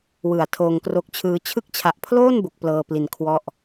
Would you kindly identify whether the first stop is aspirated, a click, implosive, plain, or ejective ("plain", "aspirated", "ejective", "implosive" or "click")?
aspirated